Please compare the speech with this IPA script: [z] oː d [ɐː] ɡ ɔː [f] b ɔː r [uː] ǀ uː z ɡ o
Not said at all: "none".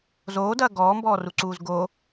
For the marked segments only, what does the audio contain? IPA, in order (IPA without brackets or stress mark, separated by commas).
z, ɐː, m, u